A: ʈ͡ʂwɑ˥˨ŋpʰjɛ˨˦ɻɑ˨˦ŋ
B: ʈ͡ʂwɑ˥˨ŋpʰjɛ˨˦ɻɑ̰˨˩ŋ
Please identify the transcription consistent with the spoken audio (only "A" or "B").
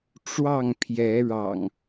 B